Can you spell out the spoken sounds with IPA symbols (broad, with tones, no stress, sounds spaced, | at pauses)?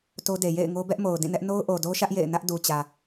t o˦ d e˨ j ḛ˦˨ ɪ̯ ŋ o˦ b ɛ˦ ʔ m o˨ ʊ̯ d ĩ˦˨ n ɛ˦ ʔ n o˦ ʊ̯ ʔ o˨ d o˦ ʃ ä˦ ʔ j ḛ˦˨ ɪ̯ n ä˦ ʔ d u˨ t͡ɕ ä˨